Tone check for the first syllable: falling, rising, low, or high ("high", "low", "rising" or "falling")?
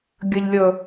low